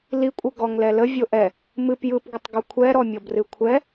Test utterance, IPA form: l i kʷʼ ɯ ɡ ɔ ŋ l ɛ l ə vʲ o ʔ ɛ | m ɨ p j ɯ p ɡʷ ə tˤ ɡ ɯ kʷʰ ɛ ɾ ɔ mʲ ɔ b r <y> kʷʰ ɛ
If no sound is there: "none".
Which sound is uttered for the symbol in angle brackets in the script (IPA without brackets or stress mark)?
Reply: ɨ